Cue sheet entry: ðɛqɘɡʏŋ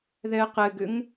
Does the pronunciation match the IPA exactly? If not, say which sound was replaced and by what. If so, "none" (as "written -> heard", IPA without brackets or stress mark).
none